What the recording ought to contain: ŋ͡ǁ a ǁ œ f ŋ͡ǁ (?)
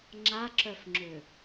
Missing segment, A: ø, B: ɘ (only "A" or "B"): A